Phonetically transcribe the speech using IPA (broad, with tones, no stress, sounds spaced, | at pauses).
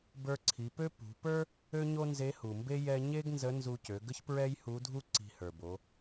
b ə˞˧ ǀʰ i˩˧ p ø˥ p ṳ˩˧ p ə˞˥ | ø˥ ɲ o˥ n z e˧˥ h u˩ m b e˥ j ɛ˧ ɲ e˥ ɡ n z ə˧˥ n z u˧ c ø˩˧ ɡ ə˥ ç p ɹ ɛ˥ j h u˧˥ dʱ u˥ ǀ i̤˧ h ə˞˩ b o˩˧